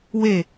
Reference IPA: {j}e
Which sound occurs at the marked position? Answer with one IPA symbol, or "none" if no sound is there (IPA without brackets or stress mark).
w